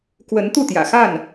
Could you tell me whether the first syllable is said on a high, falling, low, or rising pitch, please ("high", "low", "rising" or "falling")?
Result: rising